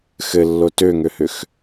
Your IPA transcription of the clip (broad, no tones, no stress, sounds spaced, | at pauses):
x ɘ lː o t ø ŋ ø h ʏ x